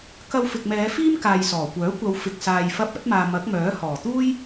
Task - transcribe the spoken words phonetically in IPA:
k ɐ˧ w f ɪ˨ k̚ m ɛː˨˧ f iː˥ m k aː˨ j s ɔː˨˩ kʷ œː˨˥ kʷ ɐ˨˧ w f ɪ˨ k̚ s aː˨ j f ɐ˧ p̚ ɐ˨˥ t̚ m aː˨ m ɐ˨˥ k̚ m œː˨˥ h ɔː˨˩ t̪ uː˥ j

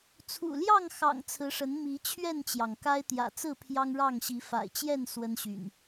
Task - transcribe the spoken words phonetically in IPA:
t͡sʰ ṵ˨˩ l j ɑ˥˨ ŋ x ɑ̰˨˩ ŋ t͡sʰ ɹ̩˨˦ ʂ ə˨˦ n m i˨˦ t͡ɕʰ ɥ ɛ˥˨ n t͡ɕ j ɑ˩ ŋ k a˦ ɪ̯ t̪ j ä̰˨˩ t͡s ɹ̩˥˨ pʰ j ɑ˦ ŋ ɻ ɑ˥˨ ŋ ɕ i˨˦ f a̰˨˩ ɪ̯ t͡ɕ j ɛ˥˨ n s w ə˦ n ɕ y̰˨˩ n

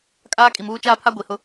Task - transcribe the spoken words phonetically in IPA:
kʼ aː˦ kʼ i˨ m uː˦ t͡ʃ aː˦ pʰ a˦ ɡʷ i˨ h ʊ˦

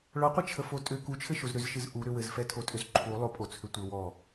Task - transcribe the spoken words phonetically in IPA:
ɭ ɔ qʷ ɘ t͡ʃʰ ə f o tʼ ʏ k u t͡ʃʰ ɘ ʃ o z ɾ ʏ z ʃ ɨ z ʔ u ɾ ʏ w ɘ z f ɛ tʰ o tʼ ʏ z ǃʰ u lˠ o pʼ o t͡sʰ ʏ tʷ ɘ w ɔ

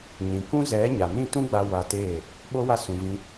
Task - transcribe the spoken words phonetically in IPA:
ɲ ĩ˨ k ũ˦ z ɛ˨˦ ɲ a˨ n ĩ˦˨ t ũ˦ ɡ͡b a˧ w a˧ t eː˦˨ | ɓ o˦ w a˦ s ũ˧ v ĩ˧

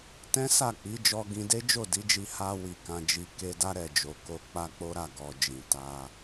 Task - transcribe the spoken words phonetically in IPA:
t ɛ̃˦ s a˦˨ k͡p i˨˦ d͡ʒ ɔ˧ ɡ ĩ˧ d e˦ d͡ʒ o˦˨ d i˨˦ d͡ʒ i˧ h a˧ w i˨ k ã˨ d͡ʒ i˨ k e˧ d a˦ ɾ ɛ˦˨ d͡ʒ o˨ k o˧ k͡p a˦ k͡p o˦ ɾ a˦˨ ɡ ɔ˨ d͡ʒ ĩ˨ t a˧

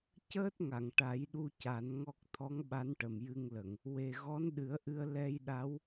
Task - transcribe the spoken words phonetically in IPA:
c əː˦˥ t̚ ŋ a˨˩˨ ŋ ʈ a˨˩˦ j ɗ u˧ c a˨˩˦ n ŋ ɔ˦˥ k̚ t̪ʰ ɔ˧˥ ŋ ɓ a˧˥ n ʈ ə˨˩ m j ɨ˧ ŋ l ə˨˩˨ ŋ | w e˨˩ ɣ ɔ˧˥ n ɗ ɨ˨˩˦ ə̯ ʔ ɨ˧ ə̯ l ɛ˧ j ɗ a˧˥ w

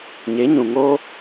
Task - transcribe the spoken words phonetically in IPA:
ɲ e˨˦ ɲ ũ˨ ŋ oː˦

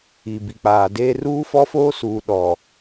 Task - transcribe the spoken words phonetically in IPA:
i˨ b i˨ k͡p aː˨ d eː˦ r uː˦ f ɔ˦ f oː˦ s uː˨ ɗ ɔ˨

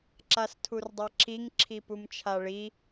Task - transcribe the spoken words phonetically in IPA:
ǁ a s tʰ u r dˤ a ǁ i ŋ ǁʰ i p u m t͡ʃʰ a ɭ i

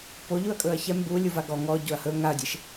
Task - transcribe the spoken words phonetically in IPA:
p o ʎ u ɐ̯ kʼ ɵ ɐ̯ ç ɛ m b u lʲ u v a ɡ ɔ ŋ ɔ ɟ o ɐ̯ h ɵ ŋ a ɐ̯ dʲ e ʃ

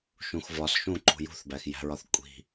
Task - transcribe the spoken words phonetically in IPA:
ʃ ũ x v ɒ s ʃ ũ ǃ ṳ j ṳ θ b æ x j æ̤ ɹ ɒ θ kʷʼ i̤

